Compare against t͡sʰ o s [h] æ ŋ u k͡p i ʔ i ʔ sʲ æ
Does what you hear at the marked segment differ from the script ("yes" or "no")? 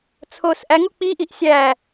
yes